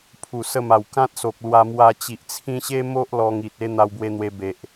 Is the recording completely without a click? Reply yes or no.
yes